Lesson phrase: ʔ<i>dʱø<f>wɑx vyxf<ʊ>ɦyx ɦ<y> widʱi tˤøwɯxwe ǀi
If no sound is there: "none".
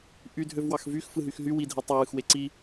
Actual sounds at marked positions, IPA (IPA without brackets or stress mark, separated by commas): y, v, ɯ, y